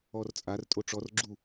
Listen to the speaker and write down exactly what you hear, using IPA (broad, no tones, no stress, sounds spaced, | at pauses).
ɔ r t͡sʼ a r tʼ o ʈ͡ʂ ɔ r ɡ͡ǁ u